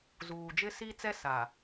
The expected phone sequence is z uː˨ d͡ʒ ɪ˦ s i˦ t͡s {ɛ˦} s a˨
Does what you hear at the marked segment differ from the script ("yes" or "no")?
no